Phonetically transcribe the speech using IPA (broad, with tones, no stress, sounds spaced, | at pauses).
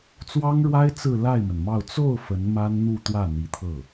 t͡s w ɑ˥ ŋ ɻ w a˥ ɪ̯ t͡s ɹ̩˥˧ l a˥˩ ɪ̯ m ə˩ n m ɑ˥˧ ʊ̯ t͡s o˥˩ ʊ̯ f ə˧˥ n m a˥ n n̪ u˥˧ t̪ w ä˥˩ n̪ i˧˥ t̪ʰ ɤ˥˩